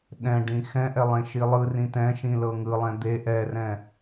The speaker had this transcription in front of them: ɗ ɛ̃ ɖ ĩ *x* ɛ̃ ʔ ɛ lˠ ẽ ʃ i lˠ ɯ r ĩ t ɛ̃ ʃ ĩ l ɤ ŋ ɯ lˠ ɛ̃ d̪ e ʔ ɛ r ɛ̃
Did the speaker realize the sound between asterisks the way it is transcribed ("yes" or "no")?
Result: yes